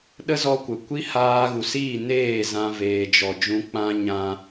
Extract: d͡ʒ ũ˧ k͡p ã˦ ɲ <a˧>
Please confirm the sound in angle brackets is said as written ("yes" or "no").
no